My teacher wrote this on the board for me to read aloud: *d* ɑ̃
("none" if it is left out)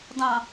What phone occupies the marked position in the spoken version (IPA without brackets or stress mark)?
d